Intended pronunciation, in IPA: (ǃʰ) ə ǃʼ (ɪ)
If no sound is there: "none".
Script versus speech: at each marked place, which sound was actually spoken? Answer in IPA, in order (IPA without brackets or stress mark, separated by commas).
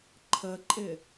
ǃʰ, ɪ